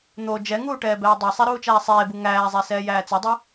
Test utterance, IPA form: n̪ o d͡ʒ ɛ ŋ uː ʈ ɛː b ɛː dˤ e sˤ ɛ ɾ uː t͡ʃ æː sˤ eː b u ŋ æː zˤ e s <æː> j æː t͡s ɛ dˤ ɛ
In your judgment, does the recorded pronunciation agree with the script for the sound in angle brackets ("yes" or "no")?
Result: no